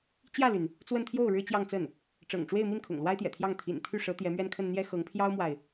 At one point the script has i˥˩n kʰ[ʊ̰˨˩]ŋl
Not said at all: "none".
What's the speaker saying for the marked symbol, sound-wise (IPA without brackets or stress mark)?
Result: ʊ̰˨˩